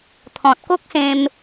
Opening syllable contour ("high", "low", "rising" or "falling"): low